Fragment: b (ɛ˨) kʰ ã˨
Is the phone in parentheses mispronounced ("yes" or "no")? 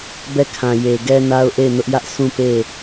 yes